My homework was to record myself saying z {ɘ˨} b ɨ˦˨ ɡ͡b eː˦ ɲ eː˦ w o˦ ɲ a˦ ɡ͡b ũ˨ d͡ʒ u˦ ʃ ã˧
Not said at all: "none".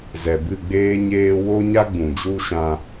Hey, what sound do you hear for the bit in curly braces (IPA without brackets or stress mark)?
ɛ˨